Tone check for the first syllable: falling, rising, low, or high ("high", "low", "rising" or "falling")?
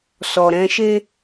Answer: low